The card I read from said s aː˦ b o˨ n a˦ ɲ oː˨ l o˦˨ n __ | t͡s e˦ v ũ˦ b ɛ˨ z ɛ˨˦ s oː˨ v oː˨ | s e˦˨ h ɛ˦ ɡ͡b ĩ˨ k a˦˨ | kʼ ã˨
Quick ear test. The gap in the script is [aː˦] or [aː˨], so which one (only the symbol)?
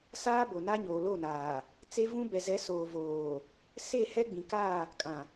aː˨